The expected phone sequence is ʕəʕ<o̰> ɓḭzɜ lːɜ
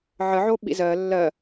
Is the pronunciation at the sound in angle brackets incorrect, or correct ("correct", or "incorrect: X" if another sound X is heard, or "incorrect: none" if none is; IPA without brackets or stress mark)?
incorrect: o